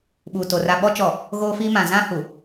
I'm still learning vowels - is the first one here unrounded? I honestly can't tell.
no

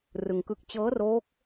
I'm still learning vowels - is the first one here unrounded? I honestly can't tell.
yes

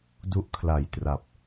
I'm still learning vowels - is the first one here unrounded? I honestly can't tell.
no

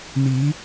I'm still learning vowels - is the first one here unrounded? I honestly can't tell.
yes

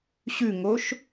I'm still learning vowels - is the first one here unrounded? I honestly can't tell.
no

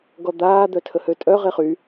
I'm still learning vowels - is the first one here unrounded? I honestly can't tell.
no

